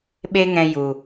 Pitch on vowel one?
high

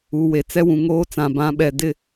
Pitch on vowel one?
low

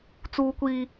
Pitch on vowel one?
high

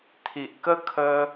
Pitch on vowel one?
low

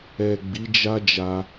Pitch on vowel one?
low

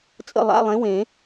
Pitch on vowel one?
falling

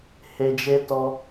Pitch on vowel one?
low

